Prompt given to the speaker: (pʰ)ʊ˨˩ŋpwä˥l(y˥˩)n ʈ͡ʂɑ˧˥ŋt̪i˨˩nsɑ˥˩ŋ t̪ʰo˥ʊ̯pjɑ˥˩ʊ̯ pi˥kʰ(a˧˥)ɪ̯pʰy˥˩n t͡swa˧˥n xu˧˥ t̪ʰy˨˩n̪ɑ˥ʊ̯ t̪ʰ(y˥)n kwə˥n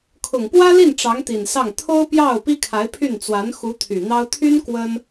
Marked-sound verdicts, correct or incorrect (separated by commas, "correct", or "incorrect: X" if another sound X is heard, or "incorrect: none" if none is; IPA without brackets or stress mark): incorrect: kʰ, incorrect: i˥˩, correct, correct